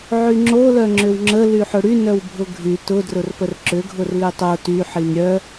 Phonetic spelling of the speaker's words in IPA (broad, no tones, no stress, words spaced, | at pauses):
ʕyŋ͡ǁolœŋ͡ǁʏw ŋ͡ǁə lyħʊɽy nœwbʱʊɡʱy tʊdrʊr pərǁʏ ɡʱʊrlytˤo tyħin ɾʲœ